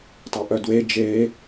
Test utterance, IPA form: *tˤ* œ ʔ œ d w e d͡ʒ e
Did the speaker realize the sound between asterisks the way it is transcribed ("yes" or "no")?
yes